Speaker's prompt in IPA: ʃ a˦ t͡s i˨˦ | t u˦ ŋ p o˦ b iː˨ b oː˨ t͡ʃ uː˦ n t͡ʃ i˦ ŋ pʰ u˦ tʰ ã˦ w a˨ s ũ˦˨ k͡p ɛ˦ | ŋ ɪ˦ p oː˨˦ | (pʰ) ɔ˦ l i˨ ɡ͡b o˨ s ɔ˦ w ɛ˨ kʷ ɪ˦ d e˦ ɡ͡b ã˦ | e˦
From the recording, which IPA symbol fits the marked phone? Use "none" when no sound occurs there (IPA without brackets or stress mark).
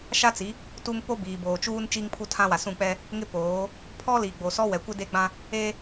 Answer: pʰ